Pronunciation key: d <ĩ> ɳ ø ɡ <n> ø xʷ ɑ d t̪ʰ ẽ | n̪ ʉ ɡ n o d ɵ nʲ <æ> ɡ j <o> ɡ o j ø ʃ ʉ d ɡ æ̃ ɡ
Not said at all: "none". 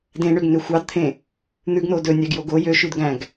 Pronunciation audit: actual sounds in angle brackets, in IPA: ẽ, n, æ, o

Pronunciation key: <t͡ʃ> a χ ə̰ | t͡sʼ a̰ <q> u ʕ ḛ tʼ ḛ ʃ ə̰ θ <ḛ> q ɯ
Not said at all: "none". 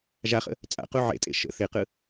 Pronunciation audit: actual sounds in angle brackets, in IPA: ʒ, q, e

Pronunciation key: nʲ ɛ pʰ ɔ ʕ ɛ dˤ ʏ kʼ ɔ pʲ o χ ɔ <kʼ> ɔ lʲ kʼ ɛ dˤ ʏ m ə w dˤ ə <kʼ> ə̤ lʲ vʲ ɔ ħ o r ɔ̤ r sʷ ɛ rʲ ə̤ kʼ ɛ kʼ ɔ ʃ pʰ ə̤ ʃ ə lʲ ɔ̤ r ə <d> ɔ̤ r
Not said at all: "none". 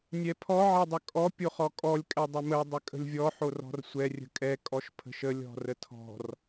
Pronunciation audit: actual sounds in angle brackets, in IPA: kʼ, kʼ, tʰ

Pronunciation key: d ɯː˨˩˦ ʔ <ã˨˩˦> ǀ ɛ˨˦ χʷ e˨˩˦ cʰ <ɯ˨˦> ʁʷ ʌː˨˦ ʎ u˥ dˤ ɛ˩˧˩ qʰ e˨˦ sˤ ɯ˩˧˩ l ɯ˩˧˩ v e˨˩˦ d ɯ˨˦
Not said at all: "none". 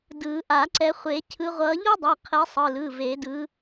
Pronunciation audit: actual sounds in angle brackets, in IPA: a˨˩˦, ɯ˨˦

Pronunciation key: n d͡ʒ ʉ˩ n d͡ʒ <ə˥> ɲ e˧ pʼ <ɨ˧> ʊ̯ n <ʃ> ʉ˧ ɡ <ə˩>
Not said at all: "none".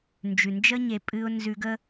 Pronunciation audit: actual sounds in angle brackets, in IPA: ə˥, ɨ˧, z, ə˥

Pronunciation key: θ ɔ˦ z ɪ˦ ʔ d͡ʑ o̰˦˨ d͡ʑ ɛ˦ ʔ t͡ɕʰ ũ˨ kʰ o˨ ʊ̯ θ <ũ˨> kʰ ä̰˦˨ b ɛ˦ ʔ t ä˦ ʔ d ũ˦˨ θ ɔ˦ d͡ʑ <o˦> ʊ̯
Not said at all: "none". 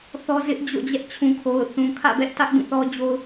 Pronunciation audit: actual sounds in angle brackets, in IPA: ũ˨, o˦

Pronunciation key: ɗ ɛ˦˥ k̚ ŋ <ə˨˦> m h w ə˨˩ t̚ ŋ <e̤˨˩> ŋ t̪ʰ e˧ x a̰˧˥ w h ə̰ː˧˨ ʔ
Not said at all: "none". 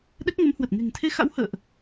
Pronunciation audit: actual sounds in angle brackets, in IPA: ə˨˦, e̤˨˩

